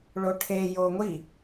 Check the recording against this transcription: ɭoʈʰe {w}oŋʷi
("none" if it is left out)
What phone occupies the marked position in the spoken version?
j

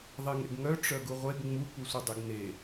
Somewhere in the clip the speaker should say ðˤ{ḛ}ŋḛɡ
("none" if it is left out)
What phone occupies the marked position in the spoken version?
e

